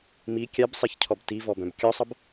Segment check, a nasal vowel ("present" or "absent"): present